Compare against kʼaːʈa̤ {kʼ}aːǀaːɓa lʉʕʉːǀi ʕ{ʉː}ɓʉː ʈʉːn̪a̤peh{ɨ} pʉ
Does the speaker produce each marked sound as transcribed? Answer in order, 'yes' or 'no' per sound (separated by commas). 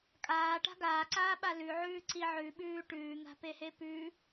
no, no, no